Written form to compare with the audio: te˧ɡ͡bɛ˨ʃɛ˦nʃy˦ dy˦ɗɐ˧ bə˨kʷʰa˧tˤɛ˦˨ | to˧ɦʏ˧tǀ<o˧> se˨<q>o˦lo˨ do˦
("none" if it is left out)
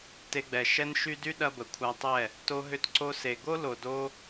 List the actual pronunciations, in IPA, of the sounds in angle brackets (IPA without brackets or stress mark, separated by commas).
o˧, ɡ